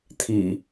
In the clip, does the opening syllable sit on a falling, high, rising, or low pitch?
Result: low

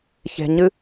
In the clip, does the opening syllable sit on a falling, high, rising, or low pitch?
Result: low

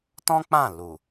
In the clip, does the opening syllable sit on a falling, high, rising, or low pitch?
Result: high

